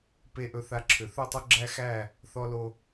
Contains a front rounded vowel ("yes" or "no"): yes